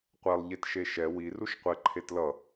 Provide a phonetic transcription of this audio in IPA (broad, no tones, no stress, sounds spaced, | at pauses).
qʷ ɛ lˠ ʎ e t ʃ e ʃ ɛ w i r u ʃ qʷ ɛ ǃʰ e t l ʌ